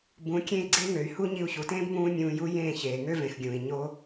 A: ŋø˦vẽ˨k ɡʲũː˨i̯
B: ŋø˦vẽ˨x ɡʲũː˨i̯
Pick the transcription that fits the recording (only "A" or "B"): B